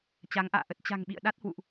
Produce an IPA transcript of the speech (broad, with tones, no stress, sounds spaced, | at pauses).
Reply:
t͡ɕ a˨˦ ŋ ʔ a̰ː˧˨ ʔ ə˦˥ t̚ t͡ɕ a̤˨˩ ŋ ɓ ḭ˧˨ ə̯ ɗ a˦˥ t̚ h w ṵ˧˨ ʔ